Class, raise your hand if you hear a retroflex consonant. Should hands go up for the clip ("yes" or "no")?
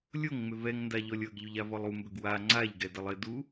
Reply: no